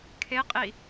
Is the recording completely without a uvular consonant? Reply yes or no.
no